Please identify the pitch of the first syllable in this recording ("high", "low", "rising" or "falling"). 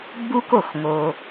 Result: high